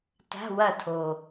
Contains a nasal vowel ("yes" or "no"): no